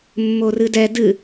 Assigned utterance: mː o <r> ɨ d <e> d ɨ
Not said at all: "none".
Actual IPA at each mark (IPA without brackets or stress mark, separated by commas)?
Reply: r, ɛ